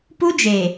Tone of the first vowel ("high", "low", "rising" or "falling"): high